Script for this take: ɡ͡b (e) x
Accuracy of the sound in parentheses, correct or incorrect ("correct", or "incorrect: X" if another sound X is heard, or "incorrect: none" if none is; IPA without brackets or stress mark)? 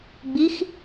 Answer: incorrect: i